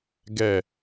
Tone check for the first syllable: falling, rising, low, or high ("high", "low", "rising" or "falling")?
falling